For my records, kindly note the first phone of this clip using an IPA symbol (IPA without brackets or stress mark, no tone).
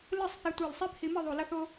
l